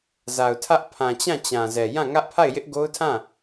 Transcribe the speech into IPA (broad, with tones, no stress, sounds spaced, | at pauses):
z a˨ ʊ̯ tʰ ä˦ ʔ pʰ ã˨ t͡ɕ ã˦˨ t͡ɕ ã˨ z ɛ˨ j ã˦˨ ŋ ä˦ ʔ pʰ a˦˨ ɪ̯ j ɪ˦ ʔ ɡ o˦ ʊ̯ tʰ ã˦˨